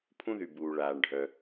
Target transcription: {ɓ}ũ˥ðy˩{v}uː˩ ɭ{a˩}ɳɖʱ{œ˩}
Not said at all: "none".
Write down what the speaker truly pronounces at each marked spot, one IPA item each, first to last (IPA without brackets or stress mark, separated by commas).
pʰ, b, aː˩, œ˩